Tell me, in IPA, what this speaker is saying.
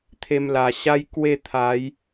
t̪ʰ e˧ m l a˨˩ ɕ a˦ j k w e˥˧ t̪ʰ a˨˦ j

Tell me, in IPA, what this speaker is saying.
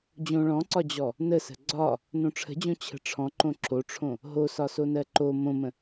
d͡ʑ õ ɭ ɔ̃ ǀ ɒ d͡ʑ ɔ | n ə s ə̤ ɡ͡ǀ ɒ | n õ ʈ͡ʂʰ ə̤ d͡ʑ õ t͡ɕʰ ə̤ ʈ͡ʂʰ ɔ̃ ǃ õ ǁʰ o ʈ͡ʂʰ õ | ɦ o s ɒ s o n ɜ ǃ o m õ m ə̃

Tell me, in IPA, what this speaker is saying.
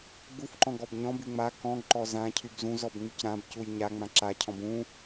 ɡ͡b u f ǃ ɔ̃ ɡ ɔ b ɲ ɔ̃ b y ŋ͡m a k ɔ̃ ɡ ǃ ɔ z ã cʰ y b z ũ z ɔ b ŋ͡m y c ɾ ã b c u j ɲ a ŋ͡m ã ǁ a cʰ ɔ̃ b ũ

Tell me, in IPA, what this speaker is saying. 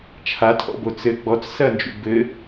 t͡ʃʰ a tʰ ɔ̰ b o t͡s ɘ ɡ͡b ɔ t͡s s ɐ n d͡ʒ ṵ b ɘ

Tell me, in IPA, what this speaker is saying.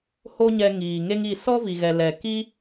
h o˦ ɲ ɛ˧ ŋ iː˨ ŋ e˦ ŋ i˦˨ s ɔ˦ v i˨ ɣ ɛ˨ l ɛ˨ k i˦

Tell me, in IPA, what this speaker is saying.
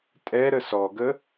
tʼ ɛ ɾ ə s ɔ ɡ ə

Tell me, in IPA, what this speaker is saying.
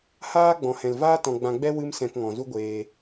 h aː˦ ɡ͡b ɔ̃˨ h ɛ̃˨ l v aː˦ t ɔ̃˧ ɡ͡b ã˧ ɡ͡b ɛ˦ w ɨ˧ m s ɛ̃˧ k ŋ ɔ̃˨ z u˦ ɡʷ eː˧

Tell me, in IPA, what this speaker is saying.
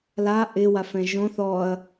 l a ʔ ɪ w a f ɛ̃ ʒ õ θ ɔ ɐ̯

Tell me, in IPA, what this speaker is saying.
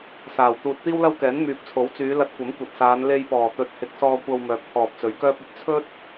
s aː˨˩ w t̪ uː˧ t̚ t̪ iː˥ w l ɐ˥ w k ɛː˨˥ n m yː˨ p̚ t͡sʰ o˨˥ w t͡s yː˨˧ l ɐ˧ t̚ kʷ ɐ˨˥ m kʷ ɐ˨ t̚ s aː˨˧ n l e˧ j p ɔː˨˩ t̪ ɵ˨ t̚ h ɪ˨˥ k̚ s ɔː˧ kʷ ɐ˧ w m œː˨ k̚ t̪ʰ ɔː˨ p̚ t͡s ɵ˨˥ ɥ k œː˥ p̚ ɐ˧ p̚ t͡sʰ ɵ˥ t̚

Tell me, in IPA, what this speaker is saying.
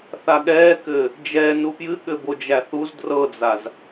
θ a ɠ ɛː k ɘː | d͡ʒ ɛ n u p j ɨ ɠ ɘ b o d͡ʒ æ θ u z d r ɤ d͡z a z

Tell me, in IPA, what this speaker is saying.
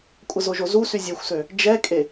kʷʼ ə z o ʒ o z u s y zʲ o xʷ s ø | d͡ʒ ɛ kʼ e

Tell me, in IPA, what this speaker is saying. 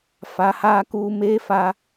f a˨˦ h aː˦ k uː˦ m eː˦ f a˦

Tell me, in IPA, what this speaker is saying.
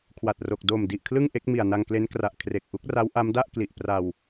kʰ w a˨˩ t̚ r o˨˩ k̚ d o˨˩ m d i˨˩ ʔ kʰ l ɯ˥˩ ŋ ʔ e˦˥ k̚ m i˨˩ a̯ n a˧ ŋ k l e˦˥ n k r a˨˩ ʔ kʰ r e˨˩ k̚ ʔ u˦˥ k̚ r a˦˥ w ʔ a˦˥ m d a˥˩ ʔ k l i˨˩ ʔ p r a˧ w

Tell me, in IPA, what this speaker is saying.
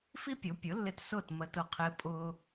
f i˥ pʲ o˩˥ pʲ ʊ˩˥ lː ɪ˧ t s ʊː˥˩ t m ə˧ t ʊ˧ qʰ ɪː˧ pʼ ʊː˧

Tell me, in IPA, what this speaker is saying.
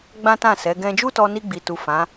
ɡ͡b ã˦ t ã˦˨ s ɛ˨˦ ɡ ɛ̃˧ d͡ʒ u˦ t ɔ˧ n i˧ ɡ͡b i˨ t u˨ f ã˨˦

